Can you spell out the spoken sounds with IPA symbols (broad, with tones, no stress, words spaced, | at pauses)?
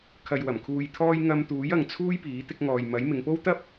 kʰɐ˨jwɐ˨˩m kʰuː˨jt̪ʰɔː˧j ŋɐ˧mt̪uː˨˥jɐ˨ŋ t͡sʰuː˥jpiː˨˥ t̪ɪ˧k̚ŋɔː˨jmɐ˨˥j mɪ˨˧ŋpo˥w t̪ɐ˥p̚